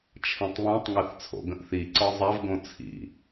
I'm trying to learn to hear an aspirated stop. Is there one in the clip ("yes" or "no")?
yes